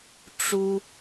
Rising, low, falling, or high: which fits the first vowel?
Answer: high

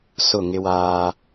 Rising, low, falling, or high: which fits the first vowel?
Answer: falling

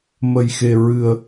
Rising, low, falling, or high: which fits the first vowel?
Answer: low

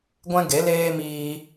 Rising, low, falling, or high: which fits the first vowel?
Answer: high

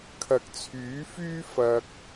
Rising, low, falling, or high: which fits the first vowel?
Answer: low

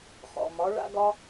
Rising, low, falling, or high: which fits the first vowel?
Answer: low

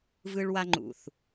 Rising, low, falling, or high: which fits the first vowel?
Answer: high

